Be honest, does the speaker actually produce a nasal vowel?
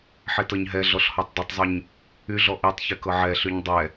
no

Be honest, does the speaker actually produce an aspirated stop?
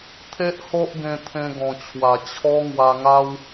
yes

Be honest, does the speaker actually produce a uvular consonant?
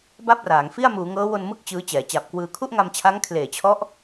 no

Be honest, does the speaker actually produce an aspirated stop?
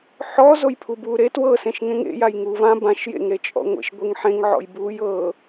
yes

